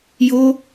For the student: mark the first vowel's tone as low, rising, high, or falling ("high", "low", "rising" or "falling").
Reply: high